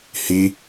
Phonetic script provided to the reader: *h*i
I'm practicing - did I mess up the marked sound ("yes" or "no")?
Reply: no